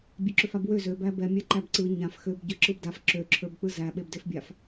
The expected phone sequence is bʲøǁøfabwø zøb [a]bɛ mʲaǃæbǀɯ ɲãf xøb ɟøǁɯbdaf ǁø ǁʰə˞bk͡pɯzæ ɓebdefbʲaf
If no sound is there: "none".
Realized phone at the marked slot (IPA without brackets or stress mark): æ